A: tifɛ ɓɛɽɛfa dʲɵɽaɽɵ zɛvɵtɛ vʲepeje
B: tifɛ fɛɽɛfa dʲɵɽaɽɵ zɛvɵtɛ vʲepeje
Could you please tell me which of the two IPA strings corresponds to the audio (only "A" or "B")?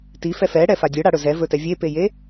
B